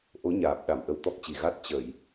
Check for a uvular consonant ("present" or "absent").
absent